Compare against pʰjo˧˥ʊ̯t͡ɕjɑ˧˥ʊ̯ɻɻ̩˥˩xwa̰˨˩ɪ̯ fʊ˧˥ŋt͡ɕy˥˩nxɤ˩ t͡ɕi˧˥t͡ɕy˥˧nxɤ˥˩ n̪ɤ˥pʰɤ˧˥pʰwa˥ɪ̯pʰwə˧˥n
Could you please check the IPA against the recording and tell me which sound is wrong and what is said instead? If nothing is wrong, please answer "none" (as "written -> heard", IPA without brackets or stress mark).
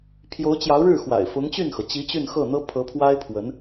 none